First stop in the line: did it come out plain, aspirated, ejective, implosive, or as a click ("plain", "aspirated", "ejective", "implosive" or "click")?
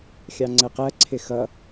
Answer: click